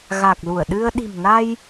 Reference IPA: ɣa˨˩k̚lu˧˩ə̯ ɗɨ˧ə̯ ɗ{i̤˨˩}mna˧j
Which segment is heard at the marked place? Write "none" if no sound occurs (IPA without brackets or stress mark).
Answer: i̤˨˩